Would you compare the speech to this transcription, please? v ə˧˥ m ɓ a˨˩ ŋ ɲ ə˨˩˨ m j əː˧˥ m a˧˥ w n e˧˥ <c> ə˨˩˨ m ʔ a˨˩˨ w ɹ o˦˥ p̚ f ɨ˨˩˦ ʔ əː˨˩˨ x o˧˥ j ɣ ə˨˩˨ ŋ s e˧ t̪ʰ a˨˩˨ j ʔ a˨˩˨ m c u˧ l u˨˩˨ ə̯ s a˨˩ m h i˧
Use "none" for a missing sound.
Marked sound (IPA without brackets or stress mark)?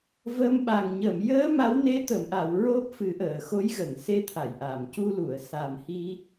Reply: t̪